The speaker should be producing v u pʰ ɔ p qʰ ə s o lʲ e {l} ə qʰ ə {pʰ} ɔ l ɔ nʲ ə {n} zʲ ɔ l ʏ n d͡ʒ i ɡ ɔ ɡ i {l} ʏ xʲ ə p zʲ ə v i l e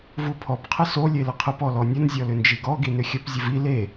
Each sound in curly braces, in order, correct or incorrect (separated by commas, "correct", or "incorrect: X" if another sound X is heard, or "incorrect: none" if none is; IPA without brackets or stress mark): correct, incorrect: p, correct, incorrect: n